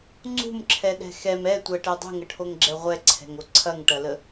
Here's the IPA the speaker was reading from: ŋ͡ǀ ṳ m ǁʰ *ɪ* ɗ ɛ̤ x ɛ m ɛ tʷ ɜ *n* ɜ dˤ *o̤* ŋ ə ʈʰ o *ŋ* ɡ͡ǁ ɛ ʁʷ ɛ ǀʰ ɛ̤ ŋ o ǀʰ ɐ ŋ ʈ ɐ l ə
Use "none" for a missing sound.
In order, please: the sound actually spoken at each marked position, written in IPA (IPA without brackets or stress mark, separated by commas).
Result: ɛ, ʈ, ṳ, ŋ